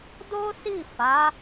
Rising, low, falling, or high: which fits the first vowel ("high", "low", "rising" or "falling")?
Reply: high